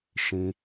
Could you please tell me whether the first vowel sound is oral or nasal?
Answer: nasal